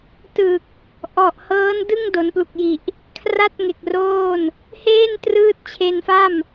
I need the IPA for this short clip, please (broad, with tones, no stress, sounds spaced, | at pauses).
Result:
t ɯ˨˩ k̚ | ʔ ɔ˨˩ ʔ h ɤː˦˥ n d ɯ˥˩ ŋ d o˩˦ n p l u˨˩ k̚ j i˨˩ ʔ | kʰ r a˥˩ t̚ ŋ e˨˩ k̚ r oː˥˩ n | h eː˥˩ n t r ɯː˦˥ t̚ t͡ɕʰ e˧ n f a˥˩ m